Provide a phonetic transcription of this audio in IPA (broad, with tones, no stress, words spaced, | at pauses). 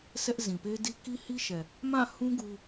sʰɛ˦ʔ zĩ˨pe˦di˦ ki˦hi˦ʃɛ˨ | mã˦˨hũ˦ ɡu˦